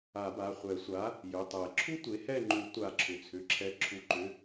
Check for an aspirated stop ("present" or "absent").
present